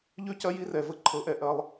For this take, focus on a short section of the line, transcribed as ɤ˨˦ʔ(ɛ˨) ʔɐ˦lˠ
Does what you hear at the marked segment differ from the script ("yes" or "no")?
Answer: no